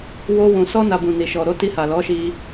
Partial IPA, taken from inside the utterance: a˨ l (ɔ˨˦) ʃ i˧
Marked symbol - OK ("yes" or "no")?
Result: yes